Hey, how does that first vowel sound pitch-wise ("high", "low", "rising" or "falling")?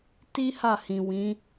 high